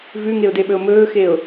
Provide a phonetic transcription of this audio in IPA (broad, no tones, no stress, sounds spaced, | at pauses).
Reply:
v ʉ ŋ e ʊ̯ d e ɓ ɵ ʊ̯ m ɵː x e ʊ̯